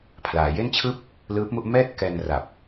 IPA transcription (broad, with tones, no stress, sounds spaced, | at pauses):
pʰ l aː˩˦ j e˥˩ n t͡ɕʰ ɯː˥˩ p̚ | l ɯː˦˥ p̚ m u˥˩ ʔ m ɛː˥˩ t̚ k ɛː˧ n r a˨˩ p̚